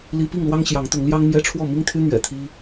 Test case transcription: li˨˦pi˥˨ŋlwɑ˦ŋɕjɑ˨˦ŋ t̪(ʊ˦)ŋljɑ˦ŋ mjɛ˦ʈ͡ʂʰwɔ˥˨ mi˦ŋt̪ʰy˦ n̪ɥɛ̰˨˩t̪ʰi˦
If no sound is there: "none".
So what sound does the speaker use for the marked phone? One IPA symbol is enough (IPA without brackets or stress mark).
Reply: ʊ˨˦